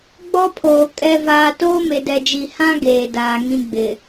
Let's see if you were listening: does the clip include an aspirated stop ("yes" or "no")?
yes